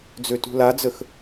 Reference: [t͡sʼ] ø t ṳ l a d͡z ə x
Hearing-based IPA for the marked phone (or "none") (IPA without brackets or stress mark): d͡z